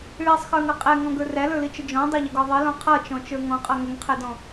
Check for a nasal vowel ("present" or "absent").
present